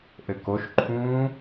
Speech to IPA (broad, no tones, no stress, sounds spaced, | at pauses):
ʔ ɘ k o ʃ ǃʰ ũː